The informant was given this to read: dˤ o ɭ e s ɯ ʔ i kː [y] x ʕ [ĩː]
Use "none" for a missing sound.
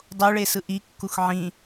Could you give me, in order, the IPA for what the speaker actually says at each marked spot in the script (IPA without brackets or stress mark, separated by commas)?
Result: u, ĩ